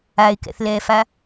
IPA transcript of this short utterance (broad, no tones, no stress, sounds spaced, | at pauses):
a ɪ̯ k ɛ̰ θ l ɛː f a